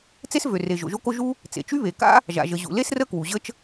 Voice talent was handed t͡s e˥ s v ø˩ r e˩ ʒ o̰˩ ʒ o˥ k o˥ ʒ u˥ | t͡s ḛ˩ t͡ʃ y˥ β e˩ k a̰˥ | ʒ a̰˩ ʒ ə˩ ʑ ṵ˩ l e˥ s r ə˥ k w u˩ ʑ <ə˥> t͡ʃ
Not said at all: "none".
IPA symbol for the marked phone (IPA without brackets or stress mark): ə˥